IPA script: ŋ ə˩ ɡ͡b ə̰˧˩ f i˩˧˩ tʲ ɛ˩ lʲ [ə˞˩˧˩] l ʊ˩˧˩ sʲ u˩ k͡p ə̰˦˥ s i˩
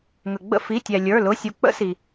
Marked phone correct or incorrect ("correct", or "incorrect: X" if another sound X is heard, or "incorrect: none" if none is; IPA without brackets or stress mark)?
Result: correct